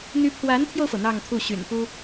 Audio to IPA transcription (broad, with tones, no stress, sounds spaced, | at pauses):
n̪ y˧˥ pʰ w a˧˥ n t̪ʰ j o˧ ʊ̯ f ɤ˩ n̪ ɑ˥˧ ŋ t̪ʰ u˥˩ ɕ y̰˨˩ n p u˥